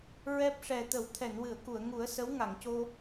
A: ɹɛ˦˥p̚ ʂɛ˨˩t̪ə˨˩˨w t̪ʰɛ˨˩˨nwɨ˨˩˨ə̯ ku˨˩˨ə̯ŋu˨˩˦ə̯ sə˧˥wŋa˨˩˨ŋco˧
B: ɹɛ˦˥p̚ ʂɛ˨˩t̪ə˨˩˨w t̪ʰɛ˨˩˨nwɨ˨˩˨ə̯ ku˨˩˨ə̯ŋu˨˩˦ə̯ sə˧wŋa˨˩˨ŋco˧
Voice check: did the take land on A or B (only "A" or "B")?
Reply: A